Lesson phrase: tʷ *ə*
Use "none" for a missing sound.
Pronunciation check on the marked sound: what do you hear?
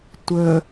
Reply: ə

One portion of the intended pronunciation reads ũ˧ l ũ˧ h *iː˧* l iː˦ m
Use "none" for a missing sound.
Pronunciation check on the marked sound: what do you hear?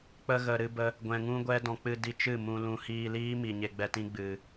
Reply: iː˧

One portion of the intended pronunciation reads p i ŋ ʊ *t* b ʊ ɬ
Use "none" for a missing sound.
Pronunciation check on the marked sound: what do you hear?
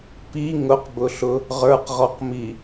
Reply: q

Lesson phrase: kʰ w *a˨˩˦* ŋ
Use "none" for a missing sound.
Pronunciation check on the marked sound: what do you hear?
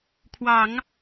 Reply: ɑ˨˩˦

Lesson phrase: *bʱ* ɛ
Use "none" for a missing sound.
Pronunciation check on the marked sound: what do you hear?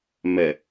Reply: m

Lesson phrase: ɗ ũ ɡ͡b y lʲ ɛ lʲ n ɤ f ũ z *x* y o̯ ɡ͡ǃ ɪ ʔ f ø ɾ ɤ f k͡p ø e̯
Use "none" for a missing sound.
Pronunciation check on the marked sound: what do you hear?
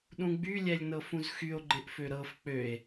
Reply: x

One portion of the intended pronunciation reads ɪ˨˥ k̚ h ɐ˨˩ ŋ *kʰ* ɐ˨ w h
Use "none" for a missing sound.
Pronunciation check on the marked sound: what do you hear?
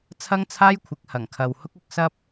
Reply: kʰ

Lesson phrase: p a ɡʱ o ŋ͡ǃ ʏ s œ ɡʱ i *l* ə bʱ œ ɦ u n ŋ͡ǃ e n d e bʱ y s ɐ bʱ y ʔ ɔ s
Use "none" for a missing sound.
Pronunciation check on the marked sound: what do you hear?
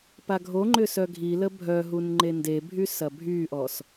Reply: l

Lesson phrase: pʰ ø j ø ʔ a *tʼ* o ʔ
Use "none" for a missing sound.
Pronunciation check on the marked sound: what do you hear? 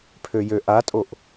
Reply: tʼ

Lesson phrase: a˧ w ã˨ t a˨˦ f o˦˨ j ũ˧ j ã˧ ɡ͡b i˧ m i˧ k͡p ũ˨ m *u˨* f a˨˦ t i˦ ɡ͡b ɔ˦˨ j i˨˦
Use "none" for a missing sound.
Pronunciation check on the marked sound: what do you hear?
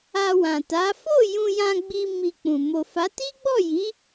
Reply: o˨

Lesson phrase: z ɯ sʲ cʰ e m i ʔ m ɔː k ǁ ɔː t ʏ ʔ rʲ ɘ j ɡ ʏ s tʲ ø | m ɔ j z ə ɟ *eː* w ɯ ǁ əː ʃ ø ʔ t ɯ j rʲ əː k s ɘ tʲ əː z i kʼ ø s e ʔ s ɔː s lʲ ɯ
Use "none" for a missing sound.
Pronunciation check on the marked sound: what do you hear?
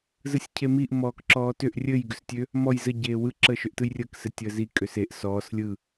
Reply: eː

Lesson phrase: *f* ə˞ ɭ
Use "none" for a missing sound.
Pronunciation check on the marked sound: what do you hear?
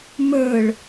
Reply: m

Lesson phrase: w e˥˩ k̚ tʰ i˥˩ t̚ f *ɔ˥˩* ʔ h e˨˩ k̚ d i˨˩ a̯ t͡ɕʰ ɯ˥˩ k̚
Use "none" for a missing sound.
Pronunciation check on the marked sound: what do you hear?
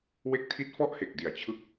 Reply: ɔ˥˩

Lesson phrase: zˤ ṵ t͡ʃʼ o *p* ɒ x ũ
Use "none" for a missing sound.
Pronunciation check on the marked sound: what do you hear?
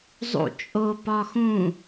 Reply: p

